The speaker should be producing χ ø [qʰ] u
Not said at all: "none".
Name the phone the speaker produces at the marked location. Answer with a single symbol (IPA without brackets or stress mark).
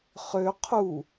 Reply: qʰ